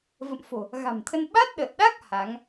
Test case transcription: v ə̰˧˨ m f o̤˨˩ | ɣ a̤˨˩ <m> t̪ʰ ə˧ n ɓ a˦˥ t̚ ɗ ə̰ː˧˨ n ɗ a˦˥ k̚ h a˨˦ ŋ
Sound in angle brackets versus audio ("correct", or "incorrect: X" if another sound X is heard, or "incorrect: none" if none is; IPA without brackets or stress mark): correct